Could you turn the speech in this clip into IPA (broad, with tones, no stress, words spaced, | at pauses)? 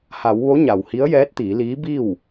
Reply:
ha˩˧w ʋo˧˥ɲa˩w hi˧˥ə̯jɛː˧˥t̚t̪iː˩˧liː˧˥ bi˥˨w